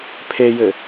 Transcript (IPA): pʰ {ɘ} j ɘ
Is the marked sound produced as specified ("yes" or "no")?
no